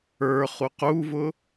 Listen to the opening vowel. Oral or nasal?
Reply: oral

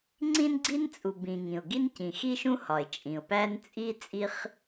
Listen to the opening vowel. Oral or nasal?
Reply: nasal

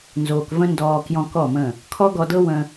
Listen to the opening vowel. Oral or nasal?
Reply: oral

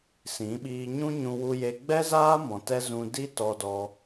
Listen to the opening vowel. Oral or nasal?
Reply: nasal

